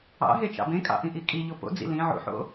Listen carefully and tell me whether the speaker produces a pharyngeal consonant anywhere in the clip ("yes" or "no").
yes